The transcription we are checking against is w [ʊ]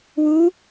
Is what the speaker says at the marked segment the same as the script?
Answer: no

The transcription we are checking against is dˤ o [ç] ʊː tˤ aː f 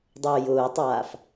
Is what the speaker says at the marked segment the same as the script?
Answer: no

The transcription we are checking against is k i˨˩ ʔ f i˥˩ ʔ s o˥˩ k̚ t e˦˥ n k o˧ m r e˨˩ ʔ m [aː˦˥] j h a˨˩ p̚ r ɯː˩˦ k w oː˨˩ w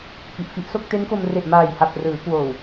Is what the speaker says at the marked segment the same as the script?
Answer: no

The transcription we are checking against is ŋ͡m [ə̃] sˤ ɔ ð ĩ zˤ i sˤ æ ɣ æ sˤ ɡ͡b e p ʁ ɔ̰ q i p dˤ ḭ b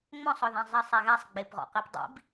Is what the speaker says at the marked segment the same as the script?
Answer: no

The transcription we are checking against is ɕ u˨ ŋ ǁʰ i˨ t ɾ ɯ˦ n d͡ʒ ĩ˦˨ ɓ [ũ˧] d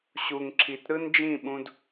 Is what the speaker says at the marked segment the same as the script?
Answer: yes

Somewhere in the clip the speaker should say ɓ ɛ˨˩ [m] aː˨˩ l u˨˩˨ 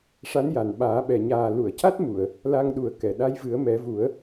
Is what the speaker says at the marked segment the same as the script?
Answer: no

